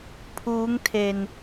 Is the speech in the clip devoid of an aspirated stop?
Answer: no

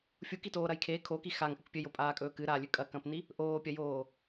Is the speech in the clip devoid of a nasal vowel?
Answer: no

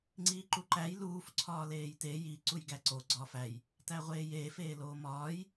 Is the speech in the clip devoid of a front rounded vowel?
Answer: yes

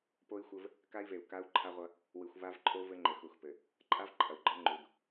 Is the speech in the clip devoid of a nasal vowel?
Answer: yes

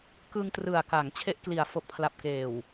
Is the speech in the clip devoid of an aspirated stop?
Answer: no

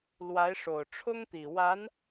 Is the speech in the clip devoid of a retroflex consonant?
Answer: no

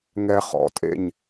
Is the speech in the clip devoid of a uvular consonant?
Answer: no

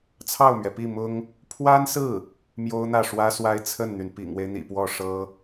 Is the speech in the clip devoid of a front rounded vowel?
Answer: no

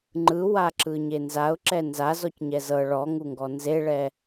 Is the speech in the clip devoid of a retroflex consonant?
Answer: no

